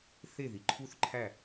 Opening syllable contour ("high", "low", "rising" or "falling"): falling